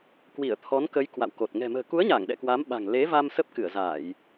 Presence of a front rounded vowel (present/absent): absent